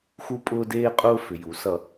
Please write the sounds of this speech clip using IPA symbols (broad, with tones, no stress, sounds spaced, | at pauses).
x u˦ pʼ ʊː˦ d eː˦ qʼ ʊː˦ f ʏ˨ j u˨˦ s ʌ˧